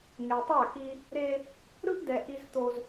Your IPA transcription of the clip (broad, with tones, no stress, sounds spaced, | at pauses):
ŋ e˨ tˤ a˦˨ k i˦ | ɾ e˦ | ɾ ɯ˦ ʔ d ɛ˨ ʔ i˦ z t̪ o˦ z